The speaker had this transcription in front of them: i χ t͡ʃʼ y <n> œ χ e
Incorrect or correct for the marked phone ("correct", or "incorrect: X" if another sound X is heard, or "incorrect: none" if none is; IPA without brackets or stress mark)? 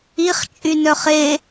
correct